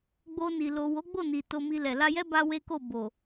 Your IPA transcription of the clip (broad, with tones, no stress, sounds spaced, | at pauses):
ɡ͡b o˧ n i˨ l o˨ w o˨˦ ɡ͡b o˦˨ n i˨ t o˧ m i˧ l ɛ˨ l a˧ j ɛ˦ b a˦ w e˦ k o˦˨ b o˨